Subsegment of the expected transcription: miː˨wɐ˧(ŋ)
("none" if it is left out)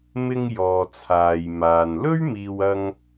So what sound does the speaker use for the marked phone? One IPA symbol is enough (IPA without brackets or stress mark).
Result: ŋ